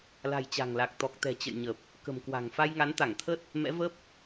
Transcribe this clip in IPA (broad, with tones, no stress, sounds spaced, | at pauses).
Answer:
l a̤˨˩ j t͡ɕ a̤˨˩ ŋ l a˨˩ k̚ t̪ ɔ˨˩ k̚ t̪ ɛ̤˨˩ t͡ɕ ə̰˧˨ j ɲ ə˨˩ p̚ | k ə̤˨˩ m k w a̤˨˩ ŋ f a˧ j ŋ a˨˦ n t̪ a˧˩ ŋ t̪ʰ ə˦˥ t̚ | m ɛ̰˧˥ v ə˦˥ p̚